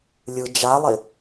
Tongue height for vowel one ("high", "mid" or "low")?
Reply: high